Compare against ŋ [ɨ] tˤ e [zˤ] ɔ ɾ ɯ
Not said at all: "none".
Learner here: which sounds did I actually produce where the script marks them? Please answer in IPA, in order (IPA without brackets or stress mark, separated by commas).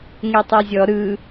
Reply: e, zʲ